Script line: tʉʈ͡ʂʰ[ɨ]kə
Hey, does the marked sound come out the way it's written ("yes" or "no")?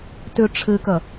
yes